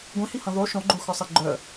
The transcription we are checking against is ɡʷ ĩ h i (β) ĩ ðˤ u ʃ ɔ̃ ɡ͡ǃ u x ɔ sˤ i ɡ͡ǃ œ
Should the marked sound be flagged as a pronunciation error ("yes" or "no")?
yes